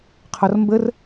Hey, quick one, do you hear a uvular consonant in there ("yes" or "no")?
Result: yes